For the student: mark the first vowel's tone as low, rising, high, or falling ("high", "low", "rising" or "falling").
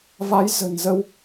rising